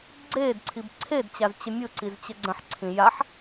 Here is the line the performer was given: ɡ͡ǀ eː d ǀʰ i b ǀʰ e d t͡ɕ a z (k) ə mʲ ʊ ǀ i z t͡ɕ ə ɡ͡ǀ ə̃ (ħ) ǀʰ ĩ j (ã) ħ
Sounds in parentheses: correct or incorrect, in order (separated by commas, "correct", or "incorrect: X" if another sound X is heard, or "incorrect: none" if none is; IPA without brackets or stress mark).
incorrect: t͡ɕ, correct, incorrect: a